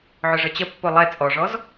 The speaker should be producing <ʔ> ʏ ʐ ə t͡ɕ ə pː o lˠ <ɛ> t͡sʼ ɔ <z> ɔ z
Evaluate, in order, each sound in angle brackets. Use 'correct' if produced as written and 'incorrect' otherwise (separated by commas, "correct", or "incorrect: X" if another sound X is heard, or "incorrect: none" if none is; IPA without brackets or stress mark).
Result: incorrect: ʕ, correct, incorrect: ʐ